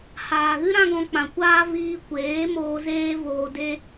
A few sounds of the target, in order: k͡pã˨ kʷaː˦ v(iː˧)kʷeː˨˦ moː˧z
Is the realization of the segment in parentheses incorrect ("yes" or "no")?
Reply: no